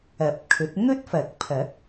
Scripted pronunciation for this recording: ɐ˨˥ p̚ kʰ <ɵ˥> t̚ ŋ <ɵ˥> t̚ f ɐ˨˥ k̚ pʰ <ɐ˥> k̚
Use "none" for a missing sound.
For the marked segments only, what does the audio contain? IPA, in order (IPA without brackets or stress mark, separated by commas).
ɵ˨˥, ɵ˥, ɐ˨˥